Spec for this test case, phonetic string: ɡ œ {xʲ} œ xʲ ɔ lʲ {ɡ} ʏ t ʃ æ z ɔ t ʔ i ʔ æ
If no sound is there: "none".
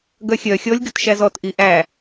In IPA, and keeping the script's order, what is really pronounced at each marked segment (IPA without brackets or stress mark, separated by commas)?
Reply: xʲ, ɡ